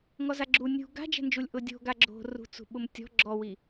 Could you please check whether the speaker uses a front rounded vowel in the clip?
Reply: no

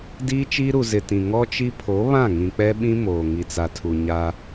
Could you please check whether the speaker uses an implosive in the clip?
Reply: yes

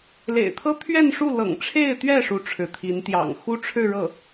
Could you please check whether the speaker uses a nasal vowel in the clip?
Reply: no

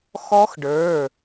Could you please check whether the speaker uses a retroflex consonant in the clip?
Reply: yes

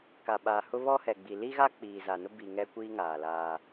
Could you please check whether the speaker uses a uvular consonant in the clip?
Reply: no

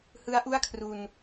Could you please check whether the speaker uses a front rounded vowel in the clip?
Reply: no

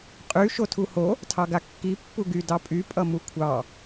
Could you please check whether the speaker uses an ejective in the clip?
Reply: yes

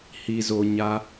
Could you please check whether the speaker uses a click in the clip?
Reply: no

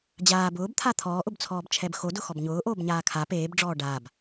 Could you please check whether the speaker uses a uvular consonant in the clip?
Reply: no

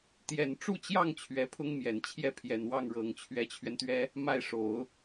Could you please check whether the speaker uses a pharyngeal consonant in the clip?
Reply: no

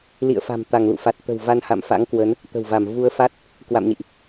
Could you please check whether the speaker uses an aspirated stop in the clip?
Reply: no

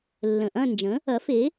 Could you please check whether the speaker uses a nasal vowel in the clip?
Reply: yes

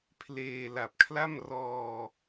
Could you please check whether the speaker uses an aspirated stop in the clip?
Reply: yes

